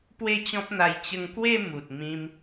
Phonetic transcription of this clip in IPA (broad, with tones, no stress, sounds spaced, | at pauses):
p w e˥˧ t͡ɕ ɔ̃˦ p̚ n̪ a˧ j t͡ɕ ə˧ ŋ k w e˥˧ m u˨ t̚ m ĩ˦ m